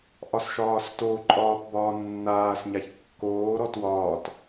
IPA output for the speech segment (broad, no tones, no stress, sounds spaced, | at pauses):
ʔ ɒ s ʃ ɒː s t o ǃʼ ɒː p b ɒː nː aː s ɲ a ç kː oː ɾ ɔ t w ɒː t